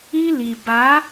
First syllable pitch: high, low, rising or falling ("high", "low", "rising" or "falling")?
high